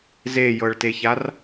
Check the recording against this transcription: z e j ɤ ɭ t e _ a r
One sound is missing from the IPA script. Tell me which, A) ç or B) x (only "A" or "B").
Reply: A